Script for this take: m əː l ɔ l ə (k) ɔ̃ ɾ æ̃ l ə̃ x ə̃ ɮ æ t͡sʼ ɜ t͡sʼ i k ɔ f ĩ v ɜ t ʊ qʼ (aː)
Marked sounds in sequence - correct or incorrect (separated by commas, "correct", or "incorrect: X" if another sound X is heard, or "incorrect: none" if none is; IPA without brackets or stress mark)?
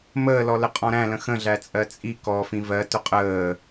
incorrect: qʼ, incorrect: əː